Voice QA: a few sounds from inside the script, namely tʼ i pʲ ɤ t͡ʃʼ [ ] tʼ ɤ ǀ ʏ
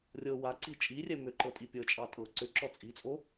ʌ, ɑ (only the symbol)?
ɑ